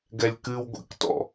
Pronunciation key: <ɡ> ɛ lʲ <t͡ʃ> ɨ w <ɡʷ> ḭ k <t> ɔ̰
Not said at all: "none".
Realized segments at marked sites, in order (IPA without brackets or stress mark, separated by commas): ɡ, k, ɡʷ, t